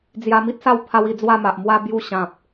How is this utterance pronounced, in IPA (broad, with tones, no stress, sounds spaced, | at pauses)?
d͡z j a˧ m i˦ t̚ s a˥˧ w pʰ a˦ w i˥˧ d͡z w a˥˧ m a˨ ʔ m w a˦ b j u˦ ɕ ã˨ p̚